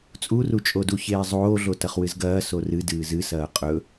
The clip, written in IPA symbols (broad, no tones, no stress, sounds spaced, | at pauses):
t͡sʼ u r u t͡ʃʼ o d u ç eː zˤ oː ɮ o t ɐ χ w ɨ z ɡ ɐː s o r ɨ d ɨː z ɨ s ɐː qʼ ɵ